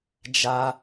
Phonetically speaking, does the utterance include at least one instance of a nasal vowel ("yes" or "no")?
no